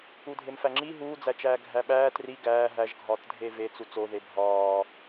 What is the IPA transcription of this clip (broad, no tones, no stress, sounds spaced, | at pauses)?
u dʱ e m f æ ŋ͡ǁ i ɦ uː d͡z æ t͡ʃ æː ɡʱ æ ɓ æː t r i ɡ æː ɦ æ ʒ ɡʱ ɒː t dʱ e v e t͡s u t͡s o ð e bʱ ɒː